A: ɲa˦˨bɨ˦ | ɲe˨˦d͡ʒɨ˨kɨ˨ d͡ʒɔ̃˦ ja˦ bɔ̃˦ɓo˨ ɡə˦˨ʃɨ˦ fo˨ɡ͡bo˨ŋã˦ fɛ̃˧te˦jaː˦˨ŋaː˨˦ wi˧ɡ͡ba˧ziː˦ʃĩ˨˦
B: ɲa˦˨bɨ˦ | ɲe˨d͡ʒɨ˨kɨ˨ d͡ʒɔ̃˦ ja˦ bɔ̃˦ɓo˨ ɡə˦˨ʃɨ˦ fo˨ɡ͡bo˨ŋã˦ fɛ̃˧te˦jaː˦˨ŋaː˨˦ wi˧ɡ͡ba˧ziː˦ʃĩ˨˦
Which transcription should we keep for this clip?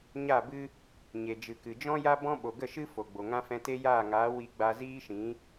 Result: B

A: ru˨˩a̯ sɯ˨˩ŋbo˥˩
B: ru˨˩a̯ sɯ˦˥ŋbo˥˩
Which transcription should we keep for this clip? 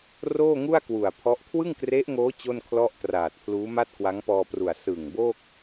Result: A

